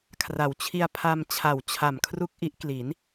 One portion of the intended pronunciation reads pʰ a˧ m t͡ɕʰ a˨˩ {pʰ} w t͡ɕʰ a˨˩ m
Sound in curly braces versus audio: incorrect: none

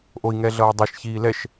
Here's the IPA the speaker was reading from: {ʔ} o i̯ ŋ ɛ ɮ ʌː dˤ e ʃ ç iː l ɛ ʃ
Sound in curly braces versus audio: correct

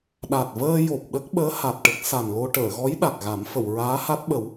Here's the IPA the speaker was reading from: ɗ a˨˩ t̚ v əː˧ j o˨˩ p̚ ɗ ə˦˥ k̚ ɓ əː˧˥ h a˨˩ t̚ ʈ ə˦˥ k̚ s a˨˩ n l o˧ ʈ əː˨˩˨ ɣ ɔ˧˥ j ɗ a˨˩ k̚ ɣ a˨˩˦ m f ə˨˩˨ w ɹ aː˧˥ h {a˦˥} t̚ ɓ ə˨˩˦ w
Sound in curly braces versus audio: correct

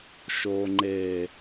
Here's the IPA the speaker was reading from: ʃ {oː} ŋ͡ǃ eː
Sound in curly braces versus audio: correct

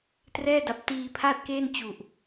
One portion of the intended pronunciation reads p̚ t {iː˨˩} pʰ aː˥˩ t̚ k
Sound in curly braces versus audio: incorrect: iː˧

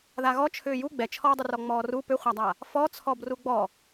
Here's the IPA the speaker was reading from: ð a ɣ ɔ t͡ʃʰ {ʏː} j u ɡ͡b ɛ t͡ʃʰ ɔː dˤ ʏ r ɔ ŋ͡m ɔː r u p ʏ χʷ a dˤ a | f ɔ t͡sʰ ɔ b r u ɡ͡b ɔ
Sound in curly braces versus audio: correct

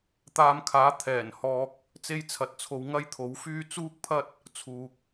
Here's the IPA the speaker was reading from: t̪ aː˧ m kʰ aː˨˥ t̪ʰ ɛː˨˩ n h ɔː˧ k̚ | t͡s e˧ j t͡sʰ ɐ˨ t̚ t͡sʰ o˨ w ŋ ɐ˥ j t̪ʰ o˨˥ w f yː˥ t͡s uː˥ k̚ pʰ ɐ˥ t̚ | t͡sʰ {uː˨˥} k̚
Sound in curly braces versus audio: incorrect: uː˨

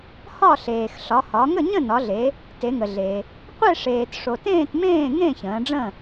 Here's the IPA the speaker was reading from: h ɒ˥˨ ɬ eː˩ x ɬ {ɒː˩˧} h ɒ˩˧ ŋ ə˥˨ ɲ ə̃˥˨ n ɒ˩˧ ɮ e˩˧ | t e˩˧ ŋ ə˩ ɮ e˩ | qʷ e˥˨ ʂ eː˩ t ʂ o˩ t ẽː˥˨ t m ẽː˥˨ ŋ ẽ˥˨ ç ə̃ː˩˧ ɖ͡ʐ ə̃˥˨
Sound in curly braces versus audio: incorrect: ɒ˩˧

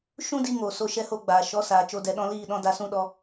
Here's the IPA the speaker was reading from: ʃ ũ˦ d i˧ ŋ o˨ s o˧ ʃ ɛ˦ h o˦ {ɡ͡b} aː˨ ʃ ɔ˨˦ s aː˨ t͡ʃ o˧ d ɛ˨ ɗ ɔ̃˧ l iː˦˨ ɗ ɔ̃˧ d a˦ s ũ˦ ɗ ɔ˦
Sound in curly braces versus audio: correct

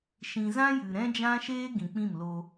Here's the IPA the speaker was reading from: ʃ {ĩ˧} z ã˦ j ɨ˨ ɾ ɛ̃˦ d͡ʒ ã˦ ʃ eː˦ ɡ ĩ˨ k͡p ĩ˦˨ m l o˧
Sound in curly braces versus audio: incorrect: ĩ˨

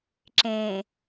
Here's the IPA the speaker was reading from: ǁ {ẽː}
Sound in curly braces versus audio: correct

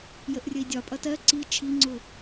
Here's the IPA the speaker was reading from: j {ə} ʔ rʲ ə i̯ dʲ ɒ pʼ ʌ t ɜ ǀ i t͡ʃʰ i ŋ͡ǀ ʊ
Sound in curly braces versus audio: correct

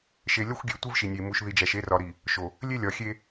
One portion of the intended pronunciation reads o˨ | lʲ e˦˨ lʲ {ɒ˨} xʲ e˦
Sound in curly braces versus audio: correct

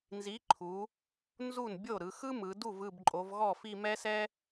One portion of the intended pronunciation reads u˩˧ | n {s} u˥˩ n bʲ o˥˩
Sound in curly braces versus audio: incorrect: z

